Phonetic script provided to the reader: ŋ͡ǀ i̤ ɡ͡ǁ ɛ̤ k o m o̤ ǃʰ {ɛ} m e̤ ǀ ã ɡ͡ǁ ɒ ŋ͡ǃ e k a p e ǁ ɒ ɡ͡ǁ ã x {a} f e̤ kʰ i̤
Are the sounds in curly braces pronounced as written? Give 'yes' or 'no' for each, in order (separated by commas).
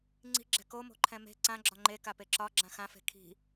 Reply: no, no